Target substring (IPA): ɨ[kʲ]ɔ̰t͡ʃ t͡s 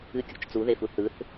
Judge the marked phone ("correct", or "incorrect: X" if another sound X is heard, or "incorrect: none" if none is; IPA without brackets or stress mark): correct